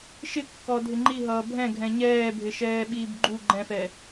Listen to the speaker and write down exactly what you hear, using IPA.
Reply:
ʃ ɪ kː ɔ dʱ ɪ ŋ͡ǃ i ɦ ʌː bʱ ɛ̃ ɡʱ ɛ̃ ɲ ɛː bʱ ɪ ʃ ɛː ɓ iː b ɡ͡ǃ u ɡ͡ǃ ɛ̃ f ɛ

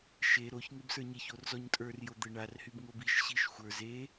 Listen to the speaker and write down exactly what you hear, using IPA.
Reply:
ʃ e ɾ o ç ŋ e b s ə˞ ɲ e ç o r z ɔ ɲ tʼ ə˞ r j o d̪ ɘ ɳ a r h y b ŋ o b i ʃ ɕ i ʃ xʷ ə˞ z e

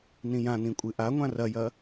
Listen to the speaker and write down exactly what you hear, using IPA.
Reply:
n ĩ j ã n ĩ kʷʼ ɨ ʔ a ŋʷ ã r ɐ j ɐ

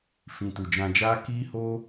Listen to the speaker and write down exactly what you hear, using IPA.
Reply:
f ĩ˨ t u˨ d͡ʒ ã˧ d͡ʒ aː˦ k iː˦ h oː˦

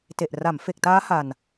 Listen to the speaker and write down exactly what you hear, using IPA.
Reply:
t e˨˩ ʔ r a˩˦ m f e˨˩ k̚ t aː˦˥ h a˨˩ n

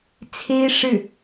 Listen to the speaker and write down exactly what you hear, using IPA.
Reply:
t͡sʰ e˥ ɪ̯ ʂ ɻ̩˥˩

